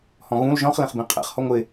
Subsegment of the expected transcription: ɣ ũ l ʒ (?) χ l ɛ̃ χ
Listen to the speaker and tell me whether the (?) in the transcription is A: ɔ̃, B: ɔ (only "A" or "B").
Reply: A